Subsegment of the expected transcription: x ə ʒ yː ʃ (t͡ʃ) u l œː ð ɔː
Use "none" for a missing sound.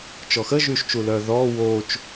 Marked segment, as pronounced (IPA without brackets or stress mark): t͡ʃ